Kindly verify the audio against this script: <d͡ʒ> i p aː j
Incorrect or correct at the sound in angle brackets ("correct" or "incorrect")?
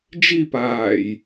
correct